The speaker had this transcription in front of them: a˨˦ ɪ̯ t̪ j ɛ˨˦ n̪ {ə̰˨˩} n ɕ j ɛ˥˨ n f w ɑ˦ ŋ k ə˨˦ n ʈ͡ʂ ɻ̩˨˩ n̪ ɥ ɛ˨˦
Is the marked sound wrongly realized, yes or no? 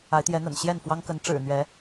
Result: no